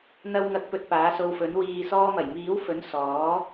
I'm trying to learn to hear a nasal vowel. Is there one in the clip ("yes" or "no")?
no